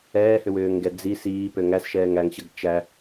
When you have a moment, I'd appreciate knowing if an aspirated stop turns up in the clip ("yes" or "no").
no